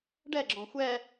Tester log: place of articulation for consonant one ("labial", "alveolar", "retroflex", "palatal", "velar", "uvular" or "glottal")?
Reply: retroflex